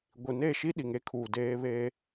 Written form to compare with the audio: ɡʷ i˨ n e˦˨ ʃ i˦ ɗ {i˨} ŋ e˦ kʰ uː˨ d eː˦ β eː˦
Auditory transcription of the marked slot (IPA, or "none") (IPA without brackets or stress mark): i˨